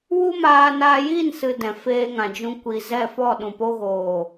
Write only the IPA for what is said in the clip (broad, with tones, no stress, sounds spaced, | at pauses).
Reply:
w u˦ m aː˧ n aː˧ j iː˦˨ n s ɨ˨ d ɛ̃˨ f eː˧ ŋ ã˨ d͡ʒ ũ˧ kʷ i˨ z ɛ˦˨ f ɔ˦˨ ɗ ũ˨ p o˧ ɣ oː˨